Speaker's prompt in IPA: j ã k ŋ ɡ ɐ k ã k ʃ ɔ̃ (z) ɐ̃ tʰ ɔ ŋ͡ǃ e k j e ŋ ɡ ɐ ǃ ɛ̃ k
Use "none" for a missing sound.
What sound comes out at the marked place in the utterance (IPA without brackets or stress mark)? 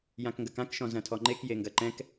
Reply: z